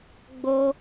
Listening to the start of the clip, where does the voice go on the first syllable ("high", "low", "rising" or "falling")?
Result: high